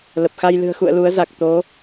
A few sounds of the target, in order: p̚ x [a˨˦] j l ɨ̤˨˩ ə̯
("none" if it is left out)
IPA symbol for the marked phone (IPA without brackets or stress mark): a˧